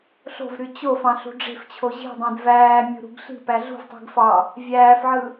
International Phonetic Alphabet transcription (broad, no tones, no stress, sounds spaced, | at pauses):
ɬ o̤ v ɾ y t͡ɕ o f ɑ̃ ɬ ṳ ɖ͡ʐ e̤ f t͡ɕʰ o ʑ i̤ dˤ ẽ d v æː mʲ ṳ ɾ ṳ ɡ ɬ i̤ p æ ɮ ṳ v tˤ i̤ ɡ f ɑ | vʲ æː f ʕ ɯ